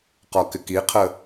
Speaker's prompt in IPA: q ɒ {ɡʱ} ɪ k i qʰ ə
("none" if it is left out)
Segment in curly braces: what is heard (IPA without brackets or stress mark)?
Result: k